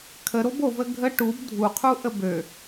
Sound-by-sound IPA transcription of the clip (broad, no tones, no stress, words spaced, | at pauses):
kʰəɾob ovə ɡʱə ʈub dʱuqʰuʔəb ø